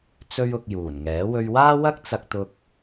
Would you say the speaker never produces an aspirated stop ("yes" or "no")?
yes